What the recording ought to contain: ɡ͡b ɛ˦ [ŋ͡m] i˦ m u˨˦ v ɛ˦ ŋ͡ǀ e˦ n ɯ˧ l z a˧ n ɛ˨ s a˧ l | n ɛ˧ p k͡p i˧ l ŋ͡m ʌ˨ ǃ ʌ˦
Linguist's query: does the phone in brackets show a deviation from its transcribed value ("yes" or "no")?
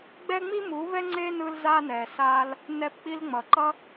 no